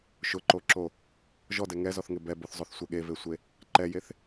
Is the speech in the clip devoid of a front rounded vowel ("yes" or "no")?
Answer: yes